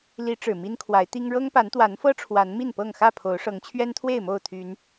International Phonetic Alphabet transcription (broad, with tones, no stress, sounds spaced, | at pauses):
l i˨˦ ʈ͡ʂ ɻ̩˨˩ m i˦ n kʰ w a˨˦ ɪ̯ t̪ i˦ ŋ ɻ ɤ˦ ŋ p a˨˦ n t̪ w a˨˦ n f ɤ˦ ʈ͡ʂʰ w a˨˦ n m i˥˨ n p ɤ˥˨ ŋ x ä˥˨ pʰ o˨˦ ʊ̯ ʂ ɤ˨˦ ŋ t͡ɕʰ ɥ ɛ˦ n t̪ʰ w e˥˨ ɪ̯ m o˥˨ ʊ̯ t̪ʰ y˨˦ n